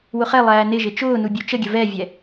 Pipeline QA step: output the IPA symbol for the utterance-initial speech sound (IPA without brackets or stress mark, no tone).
w